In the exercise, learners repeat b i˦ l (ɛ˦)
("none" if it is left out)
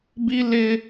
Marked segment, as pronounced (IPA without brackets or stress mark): ɪ˦